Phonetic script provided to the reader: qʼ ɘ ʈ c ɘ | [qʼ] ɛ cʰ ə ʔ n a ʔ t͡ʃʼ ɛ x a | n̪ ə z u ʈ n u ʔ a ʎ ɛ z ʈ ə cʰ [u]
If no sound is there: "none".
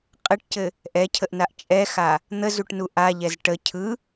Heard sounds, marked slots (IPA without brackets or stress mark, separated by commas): ʔ, ɯ